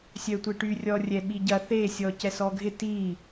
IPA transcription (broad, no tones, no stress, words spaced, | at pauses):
sʲœtʷeʈy rʲɔ rʲɛɓiɟɐ θe sʲɔcɛsɔɡʱɪ ti